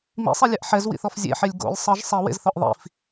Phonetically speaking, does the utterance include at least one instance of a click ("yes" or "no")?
no